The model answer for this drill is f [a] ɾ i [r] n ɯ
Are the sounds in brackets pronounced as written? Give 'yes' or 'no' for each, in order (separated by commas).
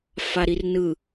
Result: yes, yes